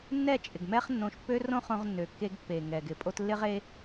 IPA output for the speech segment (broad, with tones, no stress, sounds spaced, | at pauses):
nː ɛ˦˨ t͡ʃʼ ɪ˨ ɡ m ɛ˦ χ nː õ˧ ʃ pː ø˦ r õ˦ χ õ˧ ʁ nː ø˨ kː e˧ ɡ pː e˨ ŋ ɛ˨ ɡ ɪ˨ pʼ o˧ t lː ɪ˦ ʁ e˦